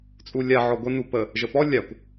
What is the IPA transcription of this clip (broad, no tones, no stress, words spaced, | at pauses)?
t͡sʼulʲa ʕɔɡʷə nupə | ʒəpɔ lʲakʷ